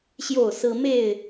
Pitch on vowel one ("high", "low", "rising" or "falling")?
falling